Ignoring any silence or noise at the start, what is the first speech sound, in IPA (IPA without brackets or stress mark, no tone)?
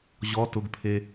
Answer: ʑ